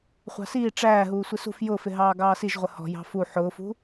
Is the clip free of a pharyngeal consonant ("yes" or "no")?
no